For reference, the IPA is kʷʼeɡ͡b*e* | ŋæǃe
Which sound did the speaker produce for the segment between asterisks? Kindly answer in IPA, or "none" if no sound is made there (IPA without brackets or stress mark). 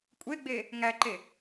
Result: e